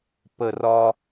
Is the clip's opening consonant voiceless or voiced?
voiceless